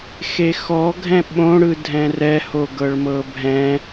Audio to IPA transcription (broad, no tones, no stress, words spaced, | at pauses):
xexɔɡʱɛ̃ ɓõɽɯdʱɛ̃ rɛhoɡɤɭ mɤbʱɛ̃